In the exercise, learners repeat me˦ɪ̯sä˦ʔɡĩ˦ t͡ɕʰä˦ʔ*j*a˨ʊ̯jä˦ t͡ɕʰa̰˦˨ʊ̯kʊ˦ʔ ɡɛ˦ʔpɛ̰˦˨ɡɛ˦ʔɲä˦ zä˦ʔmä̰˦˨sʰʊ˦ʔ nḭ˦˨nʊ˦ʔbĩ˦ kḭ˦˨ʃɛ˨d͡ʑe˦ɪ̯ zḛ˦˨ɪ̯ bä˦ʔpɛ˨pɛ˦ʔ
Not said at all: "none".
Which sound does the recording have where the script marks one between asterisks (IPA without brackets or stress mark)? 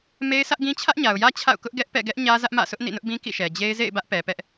ɲ